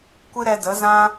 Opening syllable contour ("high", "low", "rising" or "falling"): high